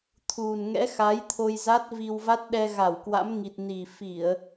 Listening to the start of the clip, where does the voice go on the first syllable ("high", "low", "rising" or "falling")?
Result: low